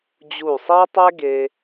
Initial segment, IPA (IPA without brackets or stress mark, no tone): d͡ʑ